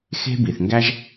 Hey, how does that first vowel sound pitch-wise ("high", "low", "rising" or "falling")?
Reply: high